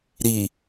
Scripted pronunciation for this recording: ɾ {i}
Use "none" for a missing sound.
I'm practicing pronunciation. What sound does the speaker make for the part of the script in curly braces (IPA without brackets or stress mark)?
i